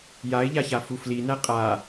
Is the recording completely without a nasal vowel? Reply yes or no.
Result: yes